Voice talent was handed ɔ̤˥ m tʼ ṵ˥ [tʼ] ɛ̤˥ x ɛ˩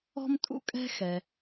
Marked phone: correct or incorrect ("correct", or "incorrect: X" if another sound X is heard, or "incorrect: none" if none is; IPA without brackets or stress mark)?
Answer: incorrect: kʼ